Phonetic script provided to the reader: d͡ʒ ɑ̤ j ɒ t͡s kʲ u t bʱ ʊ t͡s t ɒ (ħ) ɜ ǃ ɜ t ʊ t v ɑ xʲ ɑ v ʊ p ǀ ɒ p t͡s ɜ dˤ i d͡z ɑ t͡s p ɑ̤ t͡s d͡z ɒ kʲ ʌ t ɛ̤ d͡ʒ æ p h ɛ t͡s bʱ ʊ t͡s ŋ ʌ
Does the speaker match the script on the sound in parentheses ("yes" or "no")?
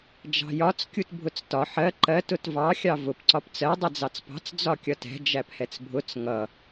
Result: yes